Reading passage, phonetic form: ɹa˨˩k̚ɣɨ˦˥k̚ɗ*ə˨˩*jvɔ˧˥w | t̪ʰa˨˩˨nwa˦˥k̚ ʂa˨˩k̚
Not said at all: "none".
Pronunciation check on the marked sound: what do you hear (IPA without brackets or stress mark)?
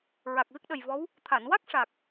ə˨˩